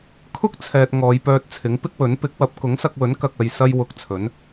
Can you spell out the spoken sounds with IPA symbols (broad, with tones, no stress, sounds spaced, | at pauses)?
kʰ ʊ˥ k̚ t͡sʰ ɛː˨ t̚ ŋ ɔː˨˧ j p œː˧ t̚ t͡sʰ ɪ˨˥ ŋ p ɪ˥ k̚ w ɵ˨˥ n p ɪ˨˥ k̚ w ɐ˨˥ p̚ k ʊ˨˥ ŋ s ɐ˧ k̚ w ɵ˨˥ n k ɐ˨ k̚ ɐ˨ j s ɐ˧ j w ʊ˧ k̚ t͡sʰ ɵ˨˥ n